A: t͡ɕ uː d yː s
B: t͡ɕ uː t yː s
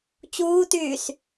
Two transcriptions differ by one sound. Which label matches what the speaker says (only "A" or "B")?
B